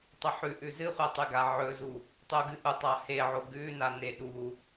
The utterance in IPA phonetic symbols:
tˤɵħʉʔʉ zɨχʷetˤʉɡa ʕɵzu | tˤuɡɨʔu tˤaheʕo ɡʉna neɗu

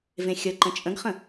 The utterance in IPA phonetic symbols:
vẽxʲəǃə̃ t͡ʃʼə̃ɡχə̃

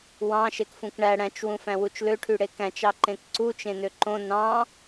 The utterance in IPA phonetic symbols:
wɑ̃ ʃekfũkɳæ ɽæ̃t͡ʃ wũfæ̃wut͡ʃlø ʈʰyɽekæ̃t͡ʃ ɑǃẽkǀu t͡ʃẽnøǃõ nɑ̃

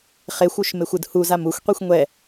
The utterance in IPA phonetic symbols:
χexʷuʃmexʷɯd huzam uxʷqʷixʷ ŋʷɛ

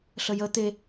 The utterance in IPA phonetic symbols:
ɬəjə t̪e

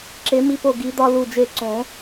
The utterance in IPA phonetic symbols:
ǁe˨˩˦mi˧po˧˩ɡi˨˩˦ d̪ɒ˧ lu˧˩d͡ʒe˧˩ǀõ˨˩˦

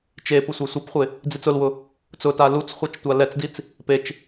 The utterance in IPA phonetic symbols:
t͡ʃepʊ sʷasʷepχʷɪ | d͡zit͡sʊlwʊ | t͡sʊta lut͡sχʷet͡ʃ tʷalɛt͡sdit͡s | pet͡ʃ

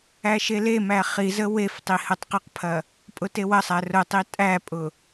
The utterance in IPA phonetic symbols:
æʃelemæ χizə wef tˤihətˤqəqpʰɐ | pʼʊtewɐsˤæ rʊtˤi tʼæpʼʊ

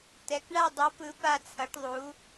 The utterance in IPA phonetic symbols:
tɛ˧˥k ɳa˥˧dˤʌ˧˥pɯ˧˥ pa˥˧t͡sʰʌ˧˥ʈðˤu˧˥

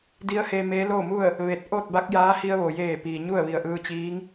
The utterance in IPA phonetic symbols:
di˧˥ə̯he˧ meː˧˥loː˥˨mu˥˨ə̯ | ʋe˧˩t̚ʔo˥˨t̚ ba˧˥k̚jaː˧˥ hi˧ə̯ʋo˩jeː˧˩ piː˩ɲu˥˨ə̯ʋi˧˩ə̯ ʔɯː˧t͡ɕiː˧˥ŋ

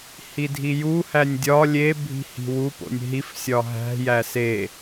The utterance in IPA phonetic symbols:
hidʱiju hænʲdʲɒ lʲe bʱi̤hi̤wu po̰nʲɦif sʲɒɦæ̤ jæse

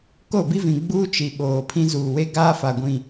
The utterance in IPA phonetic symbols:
ko˦˨bi˦vĩ˨ ɡ͡buː˦t͡ʃi˨ ɓoː˨pʰĩ˦ zuː˨we˦ ɡaː˦fa˨ɡʷĩ˦˨

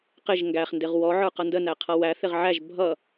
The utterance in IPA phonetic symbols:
qɪʒ ŋɡæχndɪʁ wɔʕə˞qʌ ndənæqʰʌ wæθɪʁ ʕæʒ bʱʌ

